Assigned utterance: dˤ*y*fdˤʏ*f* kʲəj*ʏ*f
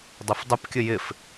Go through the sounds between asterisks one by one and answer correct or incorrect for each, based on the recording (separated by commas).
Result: incorrect, incorrect, incorrect